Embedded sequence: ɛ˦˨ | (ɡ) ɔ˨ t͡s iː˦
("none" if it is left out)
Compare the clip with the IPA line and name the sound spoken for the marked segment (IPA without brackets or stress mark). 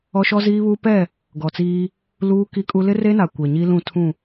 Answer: ɡ